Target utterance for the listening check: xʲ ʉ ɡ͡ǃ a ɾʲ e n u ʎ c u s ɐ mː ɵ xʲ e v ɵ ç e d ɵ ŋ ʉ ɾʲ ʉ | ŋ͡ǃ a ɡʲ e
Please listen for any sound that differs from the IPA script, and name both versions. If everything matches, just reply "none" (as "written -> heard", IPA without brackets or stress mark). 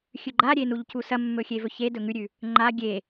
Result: none